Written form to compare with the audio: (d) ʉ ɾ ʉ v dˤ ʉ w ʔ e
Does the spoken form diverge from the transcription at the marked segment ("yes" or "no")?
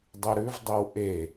yes